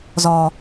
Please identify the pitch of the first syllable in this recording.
low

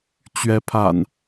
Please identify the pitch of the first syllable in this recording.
rising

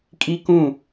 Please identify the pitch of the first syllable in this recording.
high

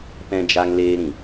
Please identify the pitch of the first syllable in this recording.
high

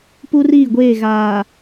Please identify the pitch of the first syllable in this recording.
high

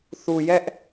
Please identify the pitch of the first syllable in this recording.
low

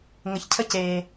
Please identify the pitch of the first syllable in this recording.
low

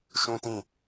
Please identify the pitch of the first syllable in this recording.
high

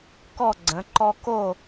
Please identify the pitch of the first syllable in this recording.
falling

